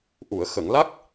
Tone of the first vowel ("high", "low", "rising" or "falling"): low